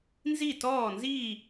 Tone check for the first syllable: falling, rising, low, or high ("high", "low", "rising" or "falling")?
falling